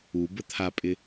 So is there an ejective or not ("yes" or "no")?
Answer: yes